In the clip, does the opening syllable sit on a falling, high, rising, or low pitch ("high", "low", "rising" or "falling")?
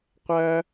high